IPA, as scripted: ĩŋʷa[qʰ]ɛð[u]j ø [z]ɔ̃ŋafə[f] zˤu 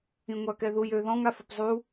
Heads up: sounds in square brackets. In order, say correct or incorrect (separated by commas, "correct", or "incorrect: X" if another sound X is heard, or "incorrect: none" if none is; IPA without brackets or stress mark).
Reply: incorrect: k, correct, incorrect: ð, incorrect: p